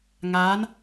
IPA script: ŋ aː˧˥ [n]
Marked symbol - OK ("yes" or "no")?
yes